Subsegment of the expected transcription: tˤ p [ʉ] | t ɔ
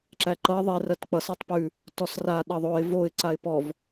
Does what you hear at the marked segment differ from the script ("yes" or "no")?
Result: no